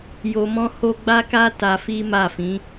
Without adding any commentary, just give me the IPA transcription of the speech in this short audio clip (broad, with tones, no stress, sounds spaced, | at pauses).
j o˧ m ɔ̃˦ h o˦ ɡ͡b a˦ k a˦ t a˧ f i˦ m a˦˨ f ĩ˨˦